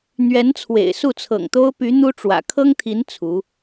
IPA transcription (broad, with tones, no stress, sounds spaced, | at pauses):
n̪ ɥ ɛ˧˥ n t͡sʰ w ḛ˨˩ ɪ̯ s u˥˩ t͡sʰ ɤ̰˨˩ ŋ t̪ o˥ ʊ̯ p y˧˥ n̪ u˥ ʈ͡ʂ w ä̰˨˩ kʰ ɤ˥ ŋ t̪ʰ i˧˥ n t͡sʰ u˧˥